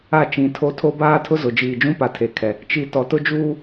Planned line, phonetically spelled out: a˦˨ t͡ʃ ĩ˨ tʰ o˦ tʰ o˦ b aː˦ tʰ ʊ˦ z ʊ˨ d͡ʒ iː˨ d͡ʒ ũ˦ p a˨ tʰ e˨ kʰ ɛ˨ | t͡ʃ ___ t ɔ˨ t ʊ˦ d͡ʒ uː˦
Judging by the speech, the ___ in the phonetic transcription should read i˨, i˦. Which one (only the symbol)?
i˨